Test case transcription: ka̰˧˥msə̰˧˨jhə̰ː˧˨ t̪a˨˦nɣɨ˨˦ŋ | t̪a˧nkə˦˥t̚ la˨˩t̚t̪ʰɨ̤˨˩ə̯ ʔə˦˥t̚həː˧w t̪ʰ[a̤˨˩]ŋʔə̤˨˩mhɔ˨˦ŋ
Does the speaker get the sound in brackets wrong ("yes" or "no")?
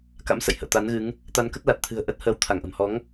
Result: yes